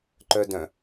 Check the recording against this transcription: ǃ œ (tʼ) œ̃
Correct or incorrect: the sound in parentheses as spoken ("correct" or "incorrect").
incorrect